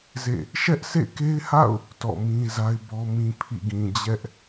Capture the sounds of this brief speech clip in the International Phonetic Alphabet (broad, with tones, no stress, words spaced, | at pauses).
zḛ˦˨ | ʃɛ˦ʔsʰḛ˦˨ke˦ɪ̯ha̰˦˨ʊ̯ | tɔ̰˦˨mĩ˦za˦ɪ̯bɔ˦ mĩ˦pʰḭ˦˨ɡĩ˨ d͡ʑɛ˦ʔ